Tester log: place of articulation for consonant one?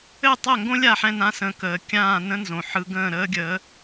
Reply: alveolar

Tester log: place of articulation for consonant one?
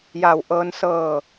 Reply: palatal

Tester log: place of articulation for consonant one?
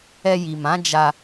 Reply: palatal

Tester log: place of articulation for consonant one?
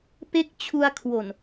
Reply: labial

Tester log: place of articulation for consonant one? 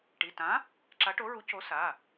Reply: retroflex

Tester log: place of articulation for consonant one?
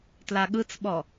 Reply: alveolar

